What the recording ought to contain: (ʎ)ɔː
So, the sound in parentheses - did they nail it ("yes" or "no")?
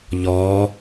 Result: yes